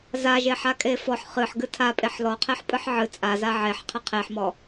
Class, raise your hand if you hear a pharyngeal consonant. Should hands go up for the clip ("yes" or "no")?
yes